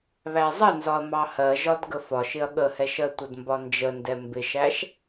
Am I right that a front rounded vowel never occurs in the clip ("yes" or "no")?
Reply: yes